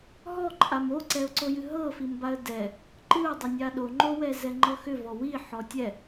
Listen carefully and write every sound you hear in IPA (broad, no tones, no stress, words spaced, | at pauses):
ɦɔǃʼam oǀɛʊ̯ǀo jɨɦɤfimbaə̯ dɛ | ǃɨʊ̯dˤʏnʲa ɗoŋ͡ǃowɛ zɛŋ͡ǃɤxʏvɔ wi ħɔtʲɛ